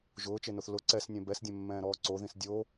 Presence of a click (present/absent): present